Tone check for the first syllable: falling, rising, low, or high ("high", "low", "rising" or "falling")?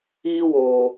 high